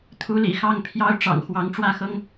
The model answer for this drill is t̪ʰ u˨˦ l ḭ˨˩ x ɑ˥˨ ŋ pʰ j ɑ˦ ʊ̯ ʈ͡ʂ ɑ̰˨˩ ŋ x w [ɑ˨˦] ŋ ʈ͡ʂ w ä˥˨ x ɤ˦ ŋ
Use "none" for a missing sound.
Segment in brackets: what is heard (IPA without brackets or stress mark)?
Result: ɑ˨˦